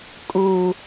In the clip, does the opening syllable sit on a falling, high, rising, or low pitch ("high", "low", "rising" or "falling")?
low